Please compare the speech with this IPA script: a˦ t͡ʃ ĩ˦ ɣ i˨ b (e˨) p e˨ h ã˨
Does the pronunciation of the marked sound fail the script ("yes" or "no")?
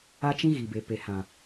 no